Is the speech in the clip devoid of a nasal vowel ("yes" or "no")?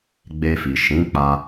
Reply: no